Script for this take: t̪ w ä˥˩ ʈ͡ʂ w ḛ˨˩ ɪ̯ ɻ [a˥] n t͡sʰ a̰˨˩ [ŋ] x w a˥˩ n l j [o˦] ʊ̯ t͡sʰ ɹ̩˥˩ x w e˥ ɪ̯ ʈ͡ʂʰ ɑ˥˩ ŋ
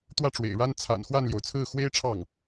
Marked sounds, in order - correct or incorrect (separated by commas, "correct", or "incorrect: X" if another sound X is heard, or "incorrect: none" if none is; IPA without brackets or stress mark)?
correct, incorrect: n, incorrect: o˩